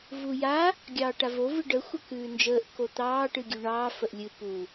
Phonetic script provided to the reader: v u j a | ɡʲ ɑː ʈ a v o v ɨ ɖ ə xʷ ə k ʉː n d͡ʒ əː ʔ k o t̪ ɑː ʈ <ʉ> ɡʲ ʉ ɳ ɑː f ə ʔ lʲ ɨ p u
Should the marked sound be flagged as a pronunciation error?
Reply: yes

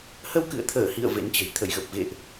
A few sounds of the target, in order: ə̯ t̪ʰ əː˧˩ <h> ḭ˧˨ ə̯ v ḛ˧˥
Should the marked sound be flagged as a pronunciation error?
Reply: no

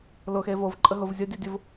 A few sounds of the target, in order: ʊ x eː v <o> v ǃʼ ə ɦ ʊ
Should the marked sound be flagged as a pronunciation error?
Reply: no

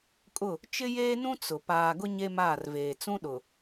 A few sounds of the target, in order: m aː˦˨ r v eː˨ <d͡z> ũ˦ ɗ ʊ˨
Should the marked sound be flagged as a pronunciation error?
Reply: yes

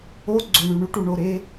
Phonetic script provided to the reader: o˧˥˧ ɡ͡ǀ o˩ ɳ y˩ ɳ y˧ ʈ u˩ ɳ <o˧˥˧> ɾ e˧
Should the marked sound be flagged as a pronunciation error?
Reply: yes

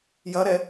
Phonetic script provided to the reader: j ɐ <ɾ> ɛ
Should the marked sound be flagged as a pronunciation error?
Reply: no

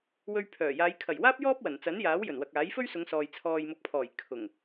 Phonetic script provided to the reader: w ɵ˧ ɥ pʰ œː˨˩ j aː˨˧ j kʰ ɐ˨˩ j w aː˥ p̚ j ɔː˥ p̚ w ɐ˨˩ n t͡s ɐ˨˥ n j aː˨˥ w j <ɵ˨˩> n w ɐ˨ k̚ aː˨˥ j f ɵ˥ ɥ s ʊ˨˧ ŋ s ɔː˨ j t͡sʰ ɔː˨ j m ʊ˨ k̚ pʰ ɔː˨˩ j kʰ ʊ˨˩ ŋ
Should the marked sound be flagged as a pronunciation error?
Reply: no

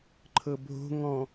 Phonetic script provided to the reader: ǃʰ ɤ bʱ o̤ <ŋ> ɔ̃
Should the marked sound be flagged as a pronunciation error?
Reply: no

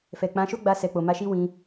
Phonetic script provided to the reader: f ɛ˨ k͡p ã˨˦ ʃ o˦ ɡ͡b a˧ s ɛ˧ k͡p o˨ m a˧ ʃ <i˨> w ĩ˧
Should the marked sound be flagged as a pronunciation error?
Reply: yes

